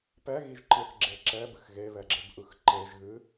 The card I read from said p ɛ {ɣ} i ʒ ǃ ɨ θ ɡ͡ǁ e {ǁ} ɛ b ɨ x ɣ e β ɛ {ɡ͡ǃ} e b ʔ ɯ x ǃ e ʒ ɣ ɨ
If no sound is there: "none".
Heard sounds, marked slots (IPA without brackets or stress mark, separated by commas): ɣ, ǁ, ɡ͡ǁ